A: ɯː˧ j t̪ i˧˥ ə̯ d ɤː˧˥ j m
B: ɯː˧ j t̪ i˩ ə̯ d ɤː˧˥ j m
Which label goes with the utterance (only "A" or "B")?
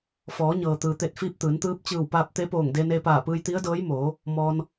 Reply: A